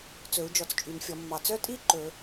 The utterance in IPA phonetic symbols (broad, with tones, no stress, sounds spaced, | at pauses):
t͡s ɵ˨˩˦ u̯ d͡ʒ ɔ˨ t͡s t͡ʃʼ y˨˩˦ n fʲ ɔ˨˩˦ mː ɑ˨ t͡s œ˥ tʼ i˥ ǃ ɵ˨˩˦